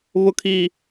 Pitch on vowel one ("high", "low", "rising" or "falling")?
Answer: low